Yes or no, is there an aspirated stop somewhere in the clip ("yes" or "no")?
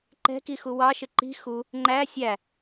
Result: no